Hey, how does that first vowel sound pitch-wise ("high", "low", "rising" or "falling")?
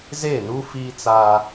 falling